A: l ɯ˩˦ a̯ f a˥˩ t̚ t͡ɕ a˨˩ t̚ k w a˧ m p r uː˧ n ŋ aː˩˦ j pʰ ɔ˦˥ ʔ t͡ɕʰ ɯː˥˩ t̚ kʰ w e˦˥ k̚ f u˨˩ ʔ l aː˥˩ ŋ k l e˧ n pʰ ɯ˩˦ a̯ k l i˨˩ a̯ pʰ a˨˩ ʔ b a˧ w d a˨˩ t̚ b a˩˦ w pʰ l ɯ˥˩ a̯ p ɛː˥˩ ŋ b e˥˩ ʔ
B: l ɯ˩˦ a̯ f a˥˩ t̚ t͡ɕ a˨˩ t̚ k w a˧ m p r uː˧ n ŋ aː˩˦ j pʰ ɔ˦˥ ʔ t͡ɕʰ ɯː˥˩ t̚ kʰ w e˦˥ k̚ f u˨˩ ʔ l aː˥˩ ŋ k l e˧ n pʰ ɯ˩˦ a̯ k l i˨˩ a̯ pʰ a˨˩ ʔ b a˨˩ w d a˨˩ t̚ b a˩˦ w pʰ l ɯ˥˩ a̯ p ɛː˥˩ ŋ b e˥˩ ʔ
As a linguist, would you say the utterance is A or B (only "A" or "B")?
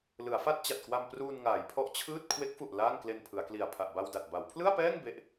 A